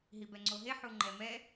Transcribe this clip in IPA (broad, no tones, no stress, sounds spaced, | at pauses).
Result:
ɦ i b ɛ ŋ͡ǀ o ɦ e ħ u ŋ͡ǃ ɛ m ɛ